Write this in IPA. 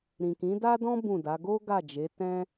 ɾĩ˨kĩ˨˦ da˦dɔ̃˦ bũ˦˨da˨˦ ɡo˦ ɡa˦˨d͡ʒe˨˦ tɛ̃˦

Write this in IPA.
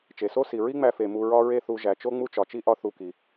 t͡ʃe˩so˥si˩ ɹi˥ŋ͡mæ˧fe˩ mu˧ɹɒ˥ ɹe˥θu˧ ʒæ˩t͡ʃo˥ ŋ͡mu˥t͡ʃɒ˩t͡ʃi˥ ʔɒ˥θu˧ki˩

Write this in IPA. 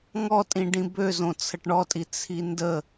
ŋɔtʼĩɖĩ bø zõt͡sʰəʈɳɔtʼi t͡sʰində

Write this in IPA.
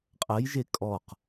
qʼɐjʒe kʼɔq

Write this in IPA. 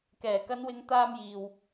kɛː˨˩ kɐ˨˧nwɪ˨˧ŋ t̪aː˧mjiː˨w

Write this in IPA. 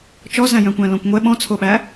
t͡ʃɔzæ̃jœ̃kʷæ̃ lɔ̃kʷŋʷɛ ɓɔ̃t͡sʰoɓæ

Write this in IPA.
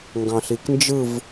ŋɡɑ̃ɬiknd͡ʒɯv

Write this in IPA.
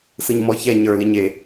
sɯɲmɔçɛ ɲə˞liɲ e

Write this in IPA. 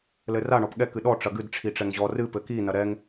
lɘra ɳɔpɠɛk ɨɗɔ ʈ͡ʂɐɡɨd ʈ͡ʂʰiʈ͡ʂɛŋʑɔ rɨ pɘki nɐɾɛŋ

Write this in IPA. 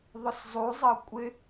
ðˤʊszˤuzˤɤ kʷʼɪ

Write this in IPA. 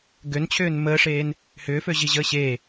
ɡønt͡ɕʰʏːn məːʂeːn | hʏːføʑiʑəː ɕe

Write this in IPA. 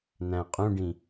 næ̃qʼũɖĩ

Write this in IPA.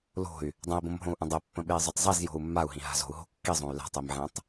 lo̤y̯ | dˤə̃i̯bõmɦõu̯ʔə̃ dˤepːə̃ɓei̯zˤotˤ zˤizjo̤u̯ mːau̯ɦĩɦa̤ zo̤u̯ɦo̤ kːizˤõy̯ la̤tˤimʕẽtˤ

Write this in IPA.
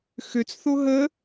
xøt͡s θoɦə

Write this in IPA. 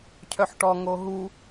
cʰœħʈɔ ŋoɦu

